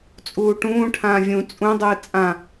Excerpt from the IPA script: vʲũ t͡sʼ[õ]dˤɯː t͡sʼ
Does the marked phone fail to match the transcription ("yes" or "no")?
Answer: yes